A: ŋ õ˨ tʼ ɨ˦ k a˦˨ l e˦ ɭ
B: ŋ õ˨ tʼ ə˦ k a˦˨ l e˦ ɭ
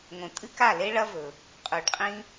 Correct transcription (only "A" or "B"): A